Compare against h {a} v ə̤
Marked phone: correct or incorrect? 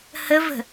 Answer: incorrect